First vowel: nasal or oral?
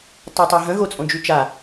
oral